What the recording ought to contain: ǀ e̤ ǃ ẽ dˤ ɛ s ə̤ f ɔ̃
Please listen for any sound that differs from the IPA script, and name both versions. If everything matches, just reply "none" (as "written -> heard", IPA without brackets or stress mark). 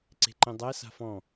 ə̤ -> a̤